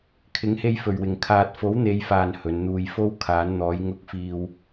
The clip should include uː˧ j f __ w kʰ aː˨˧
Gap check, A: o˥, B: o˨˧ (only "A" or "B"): A